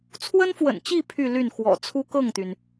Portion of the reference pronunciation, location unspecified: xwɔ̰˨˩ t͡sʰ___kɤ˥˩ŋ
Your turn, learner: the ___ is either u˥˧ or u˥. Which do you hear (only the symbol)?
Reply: u˥